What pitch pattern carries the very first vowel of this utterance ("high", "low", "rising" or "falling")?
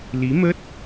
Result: rising